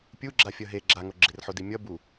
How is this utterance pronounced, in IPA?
pʲ u ɡ͡ǁ a fʲ ʌ ɦ e ɡ͡ǁ a ŋ o ɡ͡ǁ e r ħ o d i mʲ ʌ b u

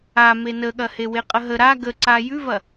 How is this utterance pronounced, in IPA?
a m e n ə ɠ ɐ h e w e qʼ ə ɦ ə ɾ a ɡ ə ǀ a j ʉ v ɐ

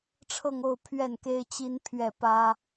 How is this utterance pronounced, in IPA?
ʈ͡ʂʰ ɤ˥˧ ŋ o˥˧ ʊ̯ pʰ ɥ ɛ˥˩ n k e˥ ɪ̯ t͡ɕ i˥ n pʰ ɥ ɛ˥˩ p ä˥

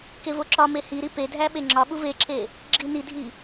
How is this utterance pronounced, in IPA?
k e v o ǁ ɒ m e h i ɾ i p e dʱ æ ɓ e ŋ͡ǁ ɒ ɓ u v e ǁ e | ɡ͡ǁ i n i dʱ i

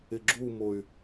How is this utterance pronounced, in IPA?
ɪ ɡ͡ǁ u m o y̯

